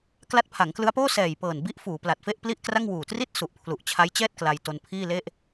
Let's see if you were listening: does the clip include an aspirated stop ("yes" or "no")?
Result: yes